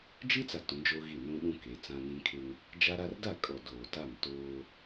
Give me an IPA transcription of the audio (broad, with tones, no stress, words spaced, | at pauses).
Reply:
d͡ʒi˦t͡sa˨ tũ˨˦d͡ʒoː˦ɣi˦˨ nũ˦ɗũ˦ke˨˦ t͡sã˦nĩ˦kʰɪ˦ŋ | d͡ʒa˦ɾa˦r da˦˨kʼɔ˨ doː˨ta˦˨mtoː˦